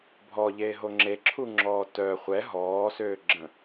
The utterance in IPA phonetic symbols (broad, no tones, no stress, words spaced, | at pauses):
bʱɔʎeːɦo ŋ͡ǁeǁʰuŋ͡ǁɔː tœ χʷɛ ɦɔːsøːɡ͡ǁə̃